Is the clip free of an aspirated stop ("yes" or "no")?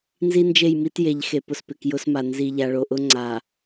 yes